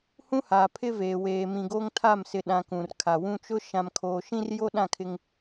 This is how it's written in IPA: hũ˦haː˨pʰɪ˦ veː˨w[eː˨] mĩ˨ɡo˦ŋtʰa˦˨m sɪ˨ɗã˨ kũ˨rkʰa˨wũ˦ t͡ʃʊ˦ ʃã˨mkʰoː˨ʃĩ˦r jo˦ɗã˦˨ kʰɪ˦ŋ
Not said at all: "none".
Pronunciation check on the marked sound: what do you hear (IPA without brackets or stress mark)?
eː˨